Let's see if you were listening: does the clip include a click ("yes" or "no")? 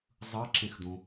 yes